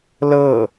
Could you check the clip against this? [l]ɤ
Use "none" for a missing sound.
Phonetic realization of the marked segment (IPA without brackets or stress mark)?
l